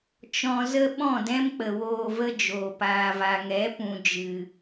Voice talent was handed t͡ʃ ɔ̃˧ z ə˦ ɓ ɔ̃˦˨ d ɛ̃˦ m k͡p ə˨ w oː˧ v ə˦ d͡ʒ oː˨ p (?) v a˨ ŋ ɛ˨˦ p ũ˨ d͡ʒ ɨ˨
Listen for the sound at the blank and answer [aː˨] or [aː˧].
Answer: aː˨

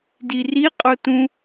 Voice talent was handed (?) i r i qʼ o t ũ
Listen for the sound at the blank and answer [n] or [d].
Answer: d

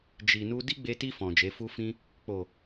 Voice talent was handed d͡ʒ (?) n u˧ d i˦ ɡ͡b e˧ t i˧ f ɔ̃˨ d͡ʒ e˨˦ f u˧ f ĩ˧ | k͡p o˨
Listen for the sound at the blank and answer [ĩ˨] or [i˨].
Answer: i˨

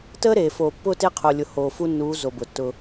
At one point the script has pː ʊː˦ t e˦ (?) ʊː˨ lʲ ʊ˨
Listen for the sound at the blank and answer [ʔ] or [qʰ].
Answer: qʰ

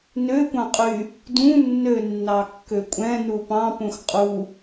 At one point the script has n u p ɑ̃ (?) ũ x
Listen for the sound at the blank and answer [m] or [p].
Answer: p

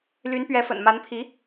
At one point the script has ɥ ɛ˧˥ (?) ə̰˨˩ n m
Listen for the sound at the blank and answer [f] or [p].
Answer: f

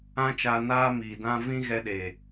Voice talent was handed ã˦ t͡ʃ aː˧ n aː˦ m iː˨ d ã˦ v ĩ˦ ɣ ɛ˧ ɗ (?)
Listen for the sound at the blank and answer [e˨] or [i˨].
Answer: e˨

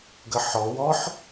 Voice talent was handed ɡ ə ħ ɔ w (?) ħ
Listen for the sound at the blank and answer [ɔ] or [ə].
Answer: ɔ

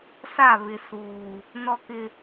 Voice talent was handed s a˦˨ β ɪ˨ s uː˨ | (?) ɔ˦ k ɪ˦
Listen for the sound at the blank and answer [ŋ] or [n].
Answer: n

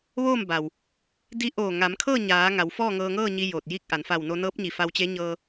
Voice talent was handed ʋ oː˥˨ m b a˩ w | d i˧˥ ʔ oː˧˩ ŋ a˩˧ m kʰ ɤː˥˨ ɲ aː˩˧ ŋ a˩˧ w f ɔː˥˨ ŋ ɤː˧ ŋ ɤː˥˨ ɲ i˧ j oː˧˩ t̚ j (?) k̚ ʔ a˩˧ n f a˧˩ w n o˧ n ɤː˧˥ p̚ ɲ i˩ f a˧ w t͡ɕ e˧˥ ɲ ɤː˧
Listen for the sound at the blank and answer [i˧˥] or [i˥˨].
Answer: i˥˨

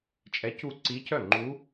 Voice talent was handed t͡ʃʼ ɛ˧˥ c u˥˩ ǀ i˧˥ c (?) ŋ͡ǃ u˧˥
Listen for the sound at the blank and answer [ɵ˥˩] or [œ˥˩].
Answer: œ˥˩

